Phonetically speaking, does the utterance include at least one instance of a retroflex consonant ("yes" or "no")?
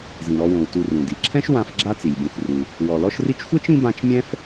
no